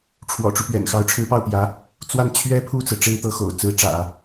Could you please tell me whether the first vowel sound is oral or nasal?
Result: oral